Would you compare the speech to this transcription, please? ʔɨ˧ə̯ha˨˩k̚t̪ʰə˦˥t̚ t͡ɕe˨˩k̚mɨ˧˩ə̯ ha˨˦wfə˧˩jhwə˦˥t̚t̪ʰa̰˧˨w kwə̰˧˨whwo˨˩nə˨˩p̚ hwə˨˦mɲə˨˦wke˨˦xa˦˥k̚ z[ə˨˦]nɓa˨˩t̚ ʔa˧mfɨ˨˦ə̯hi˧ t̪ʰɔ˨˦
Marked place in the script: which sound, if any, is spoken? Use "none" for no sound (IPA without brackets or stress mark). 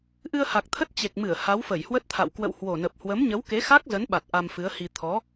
ə˨˦